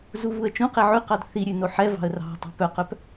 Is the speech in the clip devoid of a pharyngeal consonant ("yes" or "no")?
no